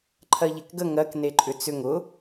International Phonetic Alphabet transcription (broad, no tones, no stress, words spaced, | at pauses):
ǃʰɜʎekɡə ŋɜk neǃʼʏt͡sʏŋ ʊ